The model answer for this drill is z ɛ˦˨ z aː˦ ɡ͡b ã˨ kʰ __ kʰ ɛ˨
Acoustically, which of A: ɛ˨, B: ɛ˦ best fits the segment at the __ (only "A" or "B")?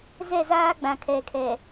A